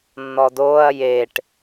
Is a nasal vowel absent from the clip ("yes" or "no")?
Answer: yes